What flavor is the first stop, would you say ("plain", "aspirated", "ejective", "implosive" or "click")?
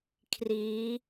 aspirated